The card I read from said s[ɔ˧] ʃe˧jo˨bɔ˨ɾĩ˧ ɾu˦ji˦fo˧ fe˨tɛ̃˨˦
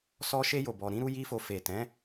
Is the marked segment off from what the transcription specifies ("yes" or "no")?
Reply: no